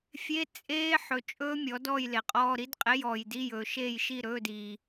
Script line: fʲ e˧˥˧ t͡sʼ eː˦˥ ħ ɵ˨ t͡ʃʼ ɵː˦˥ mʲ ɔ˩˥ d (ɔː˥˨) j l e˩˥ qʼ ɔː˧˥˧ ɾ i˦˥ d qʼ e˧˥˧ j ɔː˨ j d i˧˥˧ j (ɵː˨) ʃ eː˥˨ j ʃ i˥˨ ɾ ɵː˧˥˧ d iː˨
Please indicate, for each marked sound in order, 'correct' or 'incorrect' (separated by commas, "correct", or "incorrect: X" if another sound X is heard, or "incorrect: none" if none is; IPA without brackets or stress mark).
correct, correct